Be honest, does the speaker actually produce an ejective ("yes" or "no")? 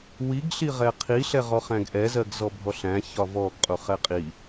yes